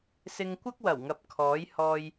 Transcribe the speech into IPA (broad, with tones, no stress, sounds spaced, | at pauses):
s ɪ˧ ŋ kʷ ɐ˥ k̚ w ɐ˨˩ w ŋ ɐ˨ p̚ kʰ ɔː˨˥ j h ɔː˧ j